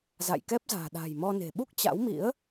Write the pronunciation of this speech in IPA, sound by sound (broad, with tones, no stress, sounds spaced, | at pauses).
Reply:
z a̰˧˨ j k ɛ˦˥ p̚ z a̤ː˨˩ ɗ a̤ː˨˩ j m ɔ˧ n e̤˨˩ ɓ u˦˥ k̚ t͡ɕ a̰˧˥ w m ḭ˧˥ ə̯